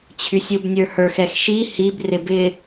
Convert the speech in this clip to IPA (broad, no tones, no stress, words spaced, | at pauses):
t͡ɕʰysʲubnʲə˞hə˞x ɛxʃi hib rɪbɪ